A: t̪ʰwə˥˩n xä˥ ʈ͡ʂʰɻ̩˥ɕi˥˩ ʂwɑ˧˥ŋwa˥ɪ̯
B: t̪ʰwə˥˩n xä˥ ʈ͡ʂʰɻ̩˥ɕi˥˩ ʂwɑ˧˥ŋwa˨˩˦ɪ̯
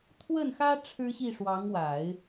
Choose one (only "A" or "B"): B